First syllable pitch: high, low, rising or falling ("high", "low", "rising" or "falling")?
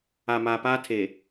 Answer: low